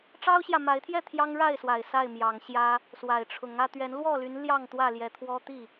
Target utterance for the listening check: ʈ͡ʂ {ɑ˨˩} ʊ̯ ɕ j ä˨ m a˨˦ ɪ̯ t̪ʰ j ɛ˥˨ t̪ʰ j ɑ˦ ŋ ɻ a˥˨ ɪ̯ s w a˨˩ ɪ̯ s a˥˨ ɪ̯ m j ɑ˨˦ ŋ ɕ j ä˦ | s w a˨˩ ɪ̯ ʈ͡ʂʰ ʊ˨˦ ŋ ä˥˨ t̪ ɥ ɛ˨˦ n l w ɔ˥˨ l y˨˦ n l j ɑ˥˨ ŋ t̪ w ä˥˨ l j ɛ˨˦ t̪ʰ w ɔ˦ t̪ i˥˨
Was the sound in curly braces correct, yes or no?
no